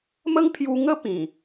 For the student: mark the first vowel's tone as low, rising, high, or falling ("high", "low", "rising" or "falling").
high